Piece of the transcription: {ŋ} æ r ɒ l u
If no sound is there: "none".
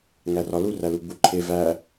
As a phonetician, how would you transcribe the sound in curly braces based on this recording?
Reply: ŋ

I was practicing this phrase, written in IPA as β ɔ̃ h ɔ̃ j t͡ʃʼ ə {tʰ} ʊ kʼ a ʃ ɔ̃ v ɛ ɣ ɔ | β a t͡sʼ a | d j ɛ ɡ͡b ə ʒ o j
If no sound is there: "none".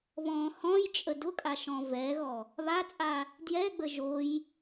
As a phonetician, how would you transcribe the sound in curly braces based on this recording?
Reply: d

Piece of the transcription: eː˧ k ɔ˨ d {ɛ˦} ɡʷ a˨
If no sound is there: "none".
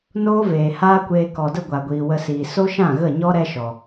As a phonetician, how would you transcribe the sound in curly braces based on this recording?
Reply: ə˦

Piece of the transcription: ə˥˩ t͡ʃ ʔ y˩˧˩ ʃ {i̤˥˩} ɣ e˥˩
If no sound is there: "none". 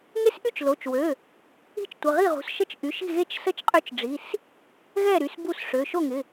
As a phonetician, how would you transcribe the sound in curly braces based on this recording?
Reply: i̤˥˩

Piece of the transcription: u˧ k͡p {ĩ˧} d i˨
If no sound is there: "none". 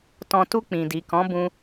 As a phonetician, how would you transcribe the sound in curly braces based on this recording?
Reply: ĩ˨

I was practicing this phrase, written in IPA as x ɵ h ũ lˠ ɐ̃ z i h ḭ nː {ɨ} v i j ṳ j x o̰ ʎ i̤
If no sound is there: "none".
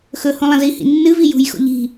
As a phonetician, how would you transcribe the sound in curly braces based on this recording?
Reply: ɨ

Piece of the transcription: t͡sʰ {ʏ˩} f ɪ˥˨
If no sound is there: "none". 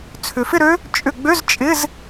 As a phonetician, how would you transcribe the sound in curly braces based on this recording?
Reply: ʏ˩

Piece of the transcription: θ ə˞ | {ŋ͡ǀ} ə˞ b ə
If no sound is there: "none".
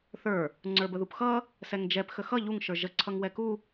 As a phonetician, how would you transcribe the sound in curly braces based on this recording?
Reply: ŋ͡ǀ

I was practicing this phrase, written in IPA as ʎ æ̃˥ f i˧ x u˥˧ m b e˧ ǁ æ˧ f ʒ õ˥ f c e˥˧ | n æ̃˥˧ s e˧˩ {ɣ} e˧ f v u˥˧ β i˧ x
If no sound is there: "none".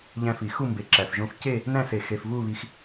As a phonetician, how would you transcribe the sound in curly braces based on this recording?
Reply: x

